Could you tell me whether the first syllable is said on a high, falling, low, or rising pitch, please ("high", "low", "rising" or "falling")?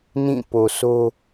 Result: falling